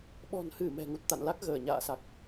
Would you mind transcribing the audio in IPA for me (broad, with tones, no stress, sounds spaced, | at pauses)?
ɓ ɔ̤˨˩ n h ɨ˧˩ m ɛ̤˨˩ ŋ u˨˩ t̚ t̪ a̰˧˨ n l a˦˥ k̚ ɣ əː˧˩ ɲ a̰ː˧˨ s a˨˩ k̚